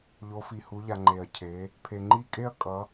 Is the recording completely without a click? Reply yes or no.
no